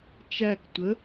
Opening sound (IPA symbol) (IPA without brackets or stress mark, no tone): t͡ʃ